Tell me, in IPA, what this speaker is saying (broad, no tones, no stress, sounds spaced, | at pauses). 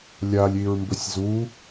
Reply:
lʲ a lʲ i ɹ m b ɵ sʲ z u